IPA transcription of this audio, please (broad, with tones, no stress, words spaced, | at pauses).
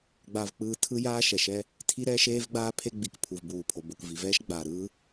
ɡ͡ba˧vk͡pɯː˧ tʰɯ˥jaː˥ ʃɛ˩ʃɛ˥ | tʰi˥ɾɛː˥ʃeː˥vɡ͡baː˥ pʰe˥ɡ͡bi˩k pʰu˩vbuː˩pʰo˩ bo˩k vi˩vɛː˥ʃ ɡ͡baː˩ ɾɯː˥